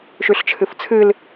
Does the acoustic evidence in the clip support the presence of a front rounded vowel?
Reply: no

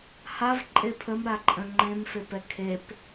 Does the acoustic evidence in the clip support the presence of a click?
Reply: yes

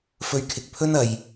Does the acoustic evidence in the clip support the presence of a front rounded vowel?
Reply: no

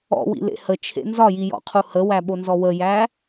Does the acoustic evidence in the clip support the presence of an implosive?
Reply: yes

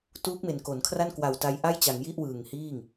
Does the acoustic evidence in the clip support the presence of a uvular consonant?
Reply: no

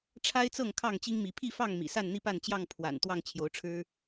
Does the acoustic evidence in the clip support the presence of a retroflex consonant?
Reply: yes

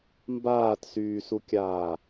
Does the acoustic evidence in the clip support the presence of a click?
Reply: no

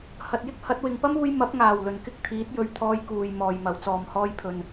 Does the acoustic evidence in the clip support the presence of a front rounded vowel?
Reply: no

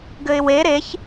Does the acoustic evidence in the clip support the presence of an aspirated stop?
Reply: no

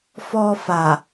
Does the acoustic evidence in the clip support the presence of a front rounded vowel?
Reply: no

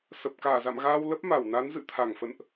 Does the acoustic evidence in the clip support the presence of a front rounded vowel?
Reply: no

